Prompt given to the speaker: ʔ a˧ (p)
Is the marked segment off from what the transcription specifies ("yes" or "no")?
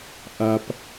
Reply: no